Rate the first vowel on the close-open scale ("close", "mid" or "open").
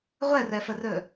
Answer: mid